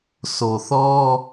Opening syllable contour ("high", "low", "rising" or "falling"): low